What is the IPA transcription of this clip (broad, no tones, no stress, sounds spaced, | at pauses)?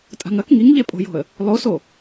tʼ a̤ ŋ ɐ k ŋ i ŋ ʎ e pʼ o̤ j o̤ ə̯ | lˠ o s o